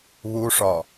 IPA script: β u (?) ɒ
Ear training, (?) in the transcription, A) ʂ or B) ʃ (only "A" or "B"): A